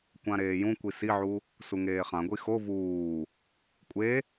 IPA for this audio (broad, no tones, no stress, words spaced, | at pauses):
kʷãɾeːjũkʷi siʕu | suŋeːχãɡʷi xo vuː | kʷʼe